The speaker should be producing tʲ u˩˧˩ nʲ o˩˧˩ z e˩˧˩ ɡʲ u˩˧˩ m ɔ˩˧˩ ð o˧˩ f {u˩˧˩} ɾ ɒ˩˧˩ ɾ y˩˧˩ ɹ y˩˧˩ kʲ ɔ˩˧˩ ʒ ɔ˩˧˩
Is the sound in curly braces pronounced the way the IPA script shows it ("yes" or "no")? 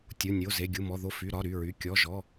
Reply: no